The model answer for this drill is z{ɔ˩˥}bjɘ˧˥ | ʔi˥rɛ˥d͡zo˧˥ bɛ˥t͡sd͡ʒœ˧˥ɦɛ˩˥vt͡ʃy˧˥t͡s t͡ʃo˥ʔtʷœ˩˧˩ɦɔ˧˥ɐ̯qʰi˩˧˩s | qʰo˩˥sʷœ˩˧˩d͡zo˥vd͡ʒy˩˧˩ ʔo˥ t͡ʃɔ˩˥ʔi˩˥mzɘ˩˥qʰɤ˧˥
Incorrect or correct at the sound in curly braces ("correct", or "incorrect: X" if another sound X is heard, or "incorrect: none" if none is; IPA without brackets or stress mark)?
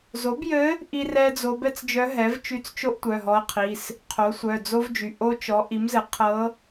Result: incorrect: o˩˥